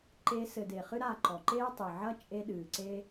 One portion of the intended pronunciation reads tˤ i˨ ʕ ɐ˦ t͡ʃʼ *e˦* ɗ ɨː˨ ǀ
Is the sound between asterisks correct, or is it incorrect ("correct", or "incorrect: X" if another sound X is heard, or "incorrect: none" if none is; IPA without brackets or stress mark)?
correct